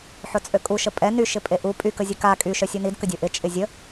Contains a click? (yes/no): no